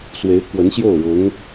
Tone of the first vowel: rising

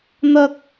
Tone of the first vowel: high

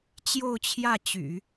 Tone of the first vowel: falling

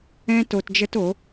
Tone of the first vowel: high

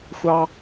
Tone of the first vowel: high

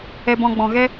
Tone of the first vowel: low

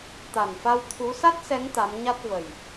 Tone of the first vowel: low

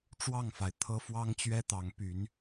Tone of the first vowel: falling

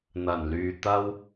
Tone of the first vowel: low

